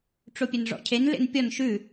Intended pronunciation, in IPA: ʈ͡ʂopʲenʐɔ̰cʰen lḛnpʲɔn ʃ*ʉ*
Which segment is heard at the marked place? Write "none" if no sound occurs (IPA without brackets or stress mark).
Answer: ʉ